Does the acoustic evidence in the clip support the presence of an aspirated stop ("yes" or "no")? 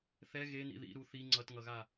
no